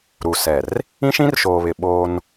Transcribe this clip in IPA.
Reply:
ɾ u˨ s ɛ˨ r | ĩ˦ ʃ ĩ˦ r ʃ oː˨ β ɪ˨ ɓ oː˦ n

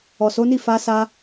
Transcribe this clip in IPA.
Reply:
ɔ˨ s o˨˦ n i˦˨ f a˧ s a˧

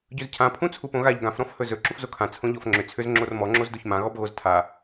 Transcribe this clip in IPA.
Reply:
ɟ ɵ z cʰ ã pʰ ũ t͡sʰ u p õ ɣ a ʎ ɡ ã f ɾ ɔ̃ f h ɵ z ɵ ǁ u f z o kʰ ã t͡sʰ õ ʎ ɔ f ŋ͡ǁ ʏ t͡sʰ ʏ z ŋ͡ǁ o r m ɔ ŋ͡ǁ o z d o ç m ã ɣ ɔ b ɣ o z tʰ a

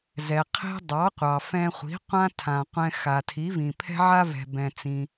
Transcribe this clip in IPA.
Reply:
z ɛ˩ qʰ e̤˥ dˤ ɑ˩˥ qʷ ɑ˩ f ɛ̃˧ χʷ i̤˩˥ qʷ ã˥ tʰ ã˩ qʷ ɛ̃˧ x a˩ tʰ i˩˥ v ĩ˩ pʰ ɛ̤˥ ʕ a˥ v ɛ̤˩ b ɛ̃˩ t͡s ĩ˩

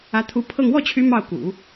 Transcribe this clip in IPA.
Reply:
ä˧˥ t̪ʰ u˧˥ pʰ ɤ˥˧ ŋ w ɔ˥˩ t͡ɕʰ y˧˥ m ɑ˥˩ ʊ̯ k ṵ˨˩˦

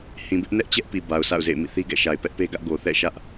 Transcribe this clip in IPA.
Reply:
h ĩ˨ b ɪ˦ ʔ n ɛ˦ ʔ t͡ɕ ɛ˦ ʔ p i˨ b a˨ ʊ̯ sʰ a̰˦˨ ʊ̯ z ḛ˦˨ ɪ̯ m ḭ˦˨ θ i˦ ɡ ɛ̰˦˨ ʃ a˨ ɪ̯ p ɛ˦ ʔ p e˦ ɡ ä˦ ʔ ɡ o˨ θ ɛ̰˦˨ ʃ ä˦ ʔ

